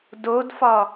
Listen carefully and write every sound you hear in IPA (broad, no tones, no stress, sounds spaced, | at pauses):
d o d f ɒ